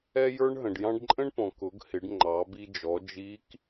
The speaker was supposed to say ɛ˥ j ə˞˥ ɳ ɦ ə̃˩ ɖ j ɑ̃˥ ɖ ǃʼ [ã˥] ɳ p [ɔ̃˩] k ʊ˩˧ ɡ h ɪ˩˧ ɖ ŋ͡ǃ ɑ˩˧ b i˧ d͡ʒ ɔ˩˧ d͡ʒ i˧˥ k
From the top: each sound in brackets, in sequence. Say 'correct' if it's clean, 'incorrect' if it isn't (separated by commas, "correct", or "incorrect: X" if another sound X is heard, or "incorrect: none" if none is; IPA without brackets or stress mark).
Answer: incorrect: ə̃˥, correct